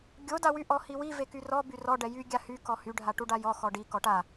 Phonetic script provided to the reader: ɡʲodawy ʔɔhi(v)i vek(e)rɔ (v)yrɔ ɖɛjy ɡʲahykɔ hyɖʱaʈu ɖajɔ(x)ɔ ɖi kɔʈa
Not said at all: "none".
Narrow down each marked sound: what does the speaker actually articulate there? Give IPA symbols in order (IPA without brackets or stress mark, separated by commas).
w, y, b, x